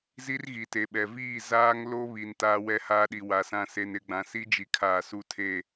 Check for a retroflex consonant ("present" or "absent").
absent